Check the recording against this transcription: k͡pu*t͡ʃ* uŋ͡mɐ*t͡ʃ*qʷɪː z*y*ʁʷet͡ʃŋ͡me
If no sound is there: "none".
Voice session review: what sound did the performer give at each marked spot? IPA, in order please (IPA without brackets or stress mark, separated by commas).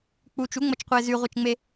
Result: t͡ʃ, t͡ʃ, y